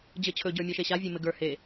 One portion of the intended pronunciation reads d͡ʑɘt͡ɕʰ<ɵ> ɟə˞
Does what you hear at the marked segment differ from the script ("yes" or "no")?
no